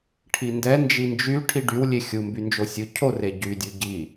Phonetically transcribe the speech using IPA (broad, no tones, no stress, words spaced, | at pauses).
ʈʰindɛ nd͡ʒind͡ʒy ʈʰiɖywlʲe xʲumbynd͡ʒo sʲu cʰore ɟydʲu ɟi